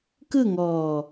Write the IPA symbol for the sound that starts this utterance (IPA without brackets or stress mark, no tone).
k